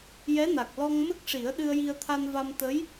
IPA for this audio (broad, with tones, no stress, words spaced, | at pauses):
jɛ˧˥na˨˩k̚lɔ˧ŋ mə˦˥k̚ʂi˨˩˦ə̯ ɗɨ˧ə̯ji˧ə̯t̪ʰa˧nva˧m t̪ə˧˥j